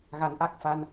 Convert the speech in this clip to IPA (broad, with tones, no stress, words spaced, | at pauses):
ɣa˨˩˦nʔa˦˥k̚ fa˧n